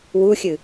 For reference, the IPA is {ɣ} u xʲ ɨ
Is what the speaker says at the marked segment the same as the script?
no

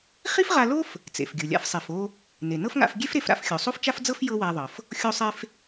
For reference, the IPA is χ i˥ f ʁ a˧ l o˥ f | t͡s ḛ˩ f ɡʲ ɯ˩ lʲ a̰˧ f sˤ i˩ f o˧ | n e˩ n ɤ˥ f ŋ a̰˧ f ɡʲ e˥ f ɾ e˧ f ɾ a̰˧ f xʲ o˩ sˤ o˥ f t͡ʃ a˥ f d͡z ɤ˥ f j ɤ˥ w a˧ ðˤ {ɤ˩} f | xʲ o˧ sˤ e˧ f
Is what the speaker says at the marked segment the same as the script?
yes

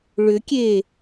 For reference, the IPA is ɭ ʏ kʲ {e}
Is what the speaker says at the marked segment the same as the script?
yes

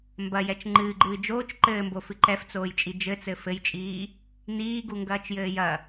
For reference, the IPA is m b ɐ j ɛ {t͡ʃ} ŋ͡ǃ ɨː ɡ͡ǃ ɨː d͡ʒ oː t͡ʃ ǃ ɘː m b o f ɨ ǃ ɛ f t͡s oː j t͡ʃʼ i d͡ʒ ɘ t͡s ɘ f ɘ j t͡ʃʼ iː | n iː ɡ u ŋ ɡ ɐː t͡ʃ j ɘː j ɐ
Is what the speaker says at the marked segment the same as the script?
yes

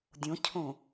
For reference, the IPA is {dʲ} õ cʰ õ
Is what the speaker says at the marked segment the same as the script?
yes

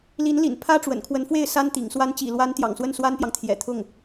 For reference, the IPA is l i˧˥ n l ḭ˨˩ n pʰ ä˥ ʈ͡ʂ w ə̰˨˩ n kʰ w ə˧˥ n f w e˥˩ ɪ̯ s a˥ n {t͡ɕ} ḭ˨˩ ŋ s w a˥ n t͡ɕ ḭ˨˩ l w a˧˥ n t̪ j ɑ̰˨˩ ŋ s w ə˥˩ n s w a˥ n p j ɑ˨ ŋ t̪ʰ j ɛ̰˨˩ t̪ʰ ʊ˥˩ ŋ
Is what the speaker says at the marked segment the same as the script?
no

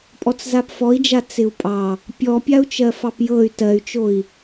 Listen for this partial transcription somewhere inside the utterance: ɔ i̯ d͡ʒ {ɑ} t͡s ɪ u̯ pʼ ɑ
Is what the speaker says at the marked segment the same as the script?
no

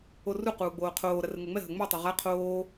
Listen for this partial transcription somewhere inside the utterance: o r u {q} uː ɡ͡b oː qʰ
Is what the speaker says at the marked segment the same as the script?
yes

